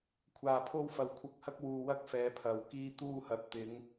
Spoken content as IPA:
kʷʰ aː˧ pʰ o˥ w f ɐ˧ w kʷʰ ɐ˧ k̚ h ɐ˥ k̚ w uː˧ w ɐ˥ k̚ f ɛː˨˧ pʰ ɐ˨ w k iː˧ t̪ uː˧ h ɐ˨ t̚ t̪ ɪ˨˧ ŋ

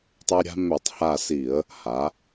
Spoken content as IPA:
tˤ e˦ ɾʲ a̤˦ m ø˧˩˧ tˤ h a˧˩ s i˧˩˧ ə̯ | h a˩˧

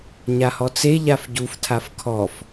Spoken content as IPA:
ɲ a h ɔ t͡s e ʎ a f ɟ u f tʰ a f kʰ ɔ f

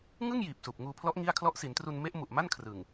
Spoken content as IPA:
ŋ ɯ˥˩ ŋ j iː˨˩ p̚ s uː˨˩ p̚ ŋ uː˧ pʰ l ɔ˦˥ ʔ ŋ i˥˩ a̯ kʰ l ɔ˦˥ ʔ s i˩˦ n t r u˧ n m e˦˥ ʔ m u˨˩ ʔ m a˥˩ n kʰ r ɯ˨˩ ŋ

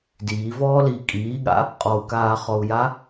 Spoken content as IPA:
d iː v ɔː l i kʼ iː ɠ a̰ | qʼ ɔ u̯ k aː χ ɔ u̯ j a

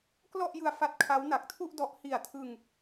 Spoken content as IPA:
k l ɔ˥˩ ʔ j ɯ˧ a̯ f a˦˥ t̚ kʰ a˦˥ w n a˨˩ k̚ tʰ u˥˩ ʔ d ɔ˦˥ ʔ h i˨˩ a̯ tʰ ɯ˧ ŋ

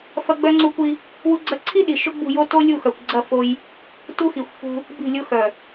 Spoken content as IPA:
f ɐ˦ ɡ͡b œ˦ ŋ͡ǀ u˦ kʷ i˦ | w u˦ ɡ͡ǀ ɐ˦ ǀʰ i˦ ɗ i˨ ʃ ʊ˦ ɡ͡b ṳ˦˨ j o˦ t o˦ lʲ u˦˨ x œ˨ kʷ ɡ͡ǀ ɐ˦˨ f o˦ j | t u˦ x i˨ xʷ f ṳ˦ | b i̤˦˨ lʲ ʊ˦ x œ˨

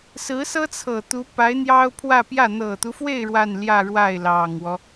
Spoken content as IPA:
s ɹ̩˧˥ s ɤ˥ t͡sʰ ɤ˨˩ t̪ u˧˥ p a˧˥ ɪ̯ n̪ j ɑ˥ ʊ̯ pʰ w ä˥˧ p j ä˥˩ n̪ ɤ˨˩ t̪ u˦ f w e˥˧ ɪ̯ ɻ w a˥˧ n l j ä˥˧ ɻ w a˥˩ ɪ̯ l ɑ˨˩ ŋ w ɔ˦

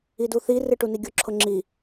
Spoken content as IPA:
i d u θ i r ɨ ʈ u n i ɡʲ ʊ ǁʰ ʊ ŋ͡ǁ i

